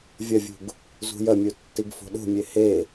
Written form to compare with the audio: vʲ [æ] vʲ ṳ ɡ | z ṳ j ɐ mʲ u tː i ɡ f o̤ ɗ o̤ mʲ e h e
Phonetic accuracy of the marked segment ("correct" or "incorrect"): incorrect